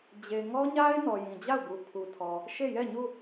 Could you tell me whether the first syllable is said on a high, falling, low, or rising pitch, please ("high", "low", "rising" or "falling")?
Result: low